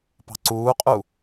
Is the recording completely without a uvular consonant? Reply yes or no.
no